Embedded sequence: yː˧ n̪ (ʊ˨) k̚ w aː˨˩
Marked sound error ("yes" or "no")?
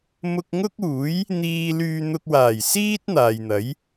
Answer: yes